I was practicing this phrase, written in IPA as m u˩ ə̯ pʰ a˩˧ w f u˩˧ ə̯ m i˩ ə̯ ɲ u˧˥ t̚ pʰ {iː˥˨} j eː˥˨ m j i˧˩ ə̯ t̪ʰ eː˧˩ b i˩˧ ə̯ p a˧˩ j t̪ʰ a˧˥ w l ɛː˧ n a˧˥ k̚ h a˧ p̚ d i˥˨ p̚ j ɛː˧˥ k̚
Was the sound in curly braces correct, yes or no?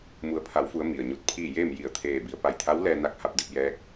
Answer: yes